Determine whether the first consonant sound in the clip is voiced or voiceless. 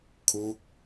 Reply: voiceless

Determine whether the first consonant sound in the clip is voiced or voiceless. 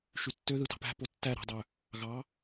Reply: voiceless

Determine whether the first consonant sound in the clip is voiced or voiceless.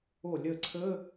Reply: voiced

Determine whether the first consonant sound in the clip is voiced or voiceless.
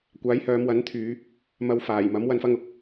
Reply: voiceless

